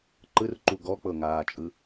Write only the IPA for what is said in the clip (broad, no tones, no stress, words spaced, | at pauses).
ǃɯrǃu ɡɔk͡pɤŋaːt͡ʃʼɯ